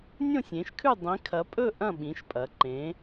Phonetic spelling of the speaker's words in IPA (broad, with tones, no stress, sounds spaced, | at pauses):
nʲ õ˥˧ sʲ ẽ˨˦ ʃ kʰ ʉ˥˧ dˤ ĩ˨˦ kʰ ɐ˨˦ pʼ ɵ˥˧ ʔ ɐ̃˥˧ ɓ ĩ˨˦ ʃ pʼ ɐ˨˦ ǃ ẽ˨˦